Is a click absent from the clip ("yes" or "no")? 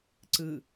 no